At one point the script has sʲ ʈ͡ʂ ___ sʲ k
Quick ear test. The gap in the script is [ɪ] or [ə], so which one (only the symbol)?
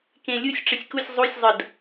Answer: ə